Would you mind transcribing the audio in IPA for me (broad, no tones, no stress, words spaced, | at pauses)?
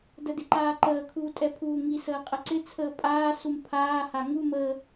dədɪǃaːǃəː kʰuːtʼɛpʰuːŋi səːqʼəǀɪ t͡sʰəːpʼaː sumpʰaː haŋu mə